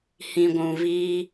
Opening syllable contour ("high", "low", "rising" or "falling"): low